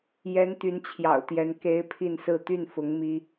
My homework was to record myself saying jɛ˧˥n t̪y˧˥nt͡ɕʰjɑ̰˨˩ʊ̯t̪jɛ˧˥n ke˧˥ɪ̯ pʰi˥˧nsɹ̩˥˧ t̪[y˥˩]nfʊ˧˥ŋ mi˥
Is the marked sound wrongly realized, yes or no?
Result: no